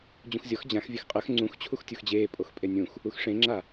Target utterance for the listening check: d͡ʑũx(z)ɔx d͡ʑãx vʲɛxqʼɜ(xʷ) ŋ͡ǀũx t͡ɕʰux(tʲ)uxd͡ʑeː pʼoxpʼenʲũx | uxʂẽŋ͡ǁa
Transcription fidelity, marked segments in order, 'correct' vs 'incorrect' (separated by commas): incorrect, incorrect, correct